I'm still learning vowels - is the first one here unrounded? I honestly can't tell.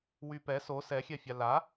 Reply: no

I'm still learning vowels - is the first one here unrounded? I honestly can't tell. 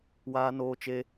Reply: yes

